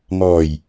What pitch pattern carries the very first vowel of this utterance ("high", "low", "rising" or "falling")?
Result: low